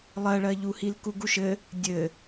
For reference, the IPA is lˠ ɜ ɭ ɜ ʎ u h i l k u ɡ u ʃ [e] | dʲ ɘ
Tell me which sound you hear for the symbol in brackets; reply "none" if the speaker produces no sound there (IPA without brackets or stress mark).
ɘ